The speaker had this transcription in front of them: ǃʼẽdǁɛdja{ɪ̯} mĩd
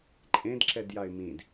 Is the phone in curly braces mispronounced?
no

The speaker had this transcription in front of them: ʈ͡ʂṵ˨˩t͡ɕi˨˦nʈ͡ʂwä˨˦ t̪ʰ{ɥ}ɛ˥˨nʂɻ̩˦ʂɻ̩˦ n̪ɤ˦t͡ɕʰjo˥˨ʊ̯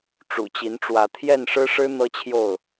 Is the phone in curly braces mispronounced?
yes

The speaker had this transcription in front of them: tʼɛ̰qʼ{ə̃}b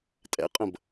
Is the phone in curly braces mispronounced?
no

